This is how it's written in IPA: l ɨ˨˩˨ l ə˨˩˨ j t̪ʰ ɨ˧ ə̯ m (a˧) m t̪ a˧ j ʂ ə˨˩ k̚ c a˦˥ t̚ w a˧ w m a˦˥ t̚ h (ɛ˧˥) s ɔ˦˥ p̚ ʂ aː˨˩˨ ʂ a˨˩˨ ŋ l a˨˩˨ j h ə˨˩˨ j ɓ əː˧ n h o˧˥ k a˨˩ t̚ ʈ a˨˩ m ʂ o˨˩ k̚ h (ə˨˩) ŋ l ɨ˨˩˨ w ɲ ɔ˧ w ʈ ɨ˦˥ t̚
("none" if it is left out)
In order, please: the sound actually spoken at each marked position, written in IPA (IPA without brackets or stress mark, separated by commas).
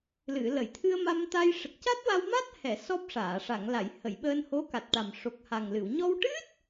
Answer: a˧, ɛ˨˩˨, a˨˩